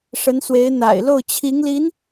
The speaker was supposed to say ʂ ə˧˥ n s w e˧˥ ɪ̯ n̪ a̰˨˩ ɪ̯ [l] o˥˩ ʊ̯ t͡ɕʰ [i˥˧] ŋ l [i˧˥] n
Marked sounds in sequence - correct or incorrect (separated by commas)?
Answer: correct, incorrect, correct